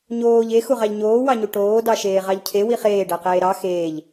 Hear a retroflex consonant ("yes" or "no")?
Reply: yes